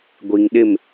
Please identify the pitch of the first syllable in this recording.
low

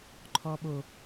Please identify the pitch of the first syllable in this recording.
low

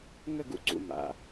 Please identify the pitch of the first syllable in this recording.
falling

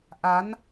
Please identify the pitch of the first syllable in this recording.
rising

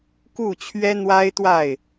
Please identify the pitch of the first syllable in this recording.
falling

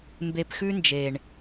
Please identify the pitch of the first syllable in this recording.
low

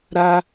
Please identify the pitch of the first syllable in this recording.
high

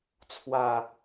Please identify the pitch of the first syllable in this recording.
low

